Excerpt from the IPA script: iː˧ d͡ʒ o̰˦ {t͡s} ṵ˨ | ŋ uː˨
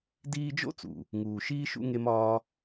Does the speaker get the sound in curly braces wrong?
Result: no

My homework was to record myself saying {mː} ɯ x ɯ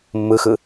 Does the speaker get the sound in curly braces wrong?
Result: no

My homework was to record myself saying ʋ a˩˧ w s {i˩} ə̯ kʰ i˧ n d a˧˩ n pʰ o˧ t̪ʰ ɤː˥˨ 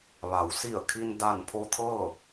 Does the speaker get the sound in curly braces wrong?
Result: yes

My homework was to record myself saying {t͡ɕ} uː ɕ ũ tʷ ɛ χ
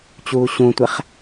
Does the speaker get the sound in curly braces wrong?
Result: no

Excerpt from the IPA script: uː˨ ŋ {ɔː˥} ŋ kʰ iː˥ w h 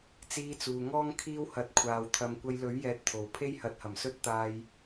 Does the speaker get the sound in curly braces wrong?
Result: no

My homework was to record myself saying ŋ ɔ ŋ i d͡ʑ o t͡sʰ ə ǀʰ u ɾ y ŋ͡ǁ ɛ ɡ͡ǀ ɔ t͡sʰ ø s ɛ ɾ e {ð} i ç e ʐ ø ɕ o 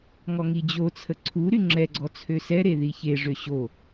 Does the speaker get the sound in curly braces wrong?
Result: no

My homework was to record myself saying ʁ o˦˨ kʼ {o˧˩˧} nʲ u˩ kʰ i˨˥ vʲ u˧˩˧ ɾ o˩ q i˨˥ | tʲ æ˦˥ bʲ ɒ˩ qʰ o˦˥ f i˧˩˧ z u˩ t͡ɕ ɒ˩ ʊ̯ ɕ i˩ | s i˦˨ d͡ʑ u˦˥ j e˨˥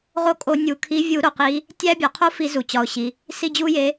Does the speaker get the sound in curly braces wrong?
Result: no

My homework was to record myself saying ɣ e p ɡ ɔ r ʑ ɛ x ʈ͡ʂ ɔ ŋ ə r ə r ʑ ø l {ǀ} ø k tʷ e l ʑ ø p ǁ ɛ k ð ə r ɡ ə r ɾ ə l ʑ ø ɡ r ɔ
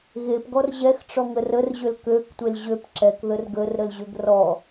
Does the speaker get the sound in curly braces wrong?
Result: yes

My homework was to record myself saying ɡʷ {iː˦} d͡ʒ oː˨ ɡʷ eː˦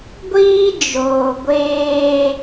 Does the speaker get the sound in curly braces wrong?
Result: no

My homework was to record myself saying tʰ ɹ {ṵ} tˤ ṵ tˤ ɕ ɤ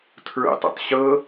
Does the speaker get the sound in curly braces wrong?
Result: no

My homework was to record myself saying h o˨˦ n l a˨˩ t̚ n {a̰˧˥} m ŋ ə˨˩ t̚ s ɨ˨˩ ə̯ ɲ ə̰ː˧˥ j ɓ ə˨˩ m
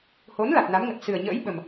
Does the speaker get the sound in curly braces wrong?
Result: yes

